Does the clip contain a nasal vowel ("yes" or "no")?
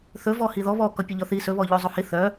no